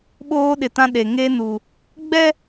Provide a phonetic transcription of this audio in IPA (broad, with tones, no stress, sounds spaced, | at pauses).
ɓ oː˦ ɗ ɪ˨ t ã˦ ɗ e˨ ŋ e˦ n u˨ | ɡ͡b ɛ˦